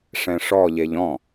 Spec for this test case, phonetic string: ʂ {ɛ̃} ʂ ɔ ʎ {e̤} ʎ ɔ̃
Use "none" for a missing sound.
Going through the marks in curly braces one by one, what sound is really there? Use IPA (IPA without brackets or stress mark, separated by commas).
ɛ̃, e